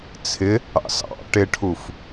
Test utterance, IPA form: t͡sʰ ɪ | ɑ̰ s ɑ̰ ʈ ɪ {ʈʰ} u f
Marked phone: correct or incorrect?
correct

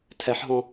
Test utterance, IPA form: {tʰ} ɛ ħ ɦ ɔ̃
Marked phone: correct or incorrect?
correct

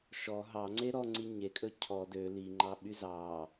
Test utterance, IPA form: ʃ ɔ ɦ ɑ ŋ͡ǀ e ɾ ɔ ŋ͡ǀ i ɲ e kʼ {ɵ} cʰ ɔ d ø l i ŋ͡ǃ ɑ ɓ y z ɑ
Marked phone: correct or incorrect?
correct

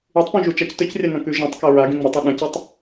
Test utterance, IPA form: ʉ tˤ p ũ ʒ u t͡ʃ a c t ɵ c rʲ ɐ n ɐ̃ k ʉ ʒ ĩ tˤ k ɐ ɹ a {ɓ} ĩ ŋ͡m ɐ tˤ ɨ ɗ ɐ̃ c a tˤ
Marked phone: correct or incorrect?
incorrect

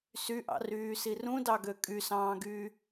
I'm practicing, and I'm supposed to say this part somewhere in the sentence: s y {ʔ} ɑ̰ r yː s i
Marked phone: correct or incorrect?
correct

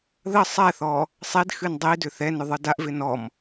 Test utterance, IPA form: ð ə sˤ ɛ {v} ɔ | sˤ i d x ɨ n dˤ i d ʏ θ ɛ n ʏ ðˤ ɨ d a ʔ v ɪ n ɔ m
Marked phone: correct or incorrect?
incorrect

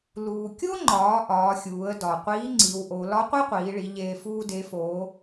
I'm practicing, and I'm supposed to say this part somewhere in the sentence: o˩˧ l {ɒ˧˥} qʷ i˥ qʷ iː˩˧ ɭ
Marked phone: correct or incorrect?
correct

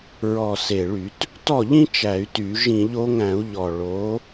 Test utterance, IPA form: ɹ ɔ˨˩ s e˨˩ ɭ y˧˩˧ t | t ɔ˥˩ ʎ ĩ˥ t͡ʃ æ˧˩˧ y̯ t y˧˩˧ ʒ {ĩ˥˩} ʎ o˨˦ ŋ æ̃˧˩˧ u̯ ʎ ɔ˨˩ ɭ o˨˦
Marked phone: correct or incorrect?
incorrect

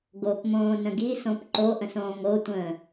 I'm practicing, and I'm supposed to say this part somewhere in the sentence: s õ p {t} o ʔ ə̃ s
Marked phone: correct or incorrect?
incorrect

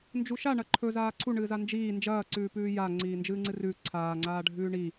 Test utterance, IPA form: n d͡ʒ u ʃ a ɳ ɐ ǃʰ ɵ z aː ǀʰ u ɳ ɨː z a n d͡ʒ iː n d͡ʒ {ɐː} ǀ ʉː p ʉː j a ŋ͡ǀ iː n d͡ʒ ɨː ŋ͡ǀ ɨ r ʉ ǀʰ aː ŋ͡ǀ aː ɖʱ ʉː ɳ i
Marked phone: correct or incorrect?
correct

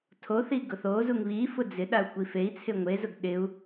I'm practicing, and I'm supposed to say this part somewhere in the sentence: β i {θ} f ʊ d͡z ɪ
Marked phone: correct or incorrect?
incorrect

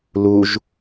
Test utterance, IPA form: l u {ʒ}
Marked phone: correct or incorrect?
correct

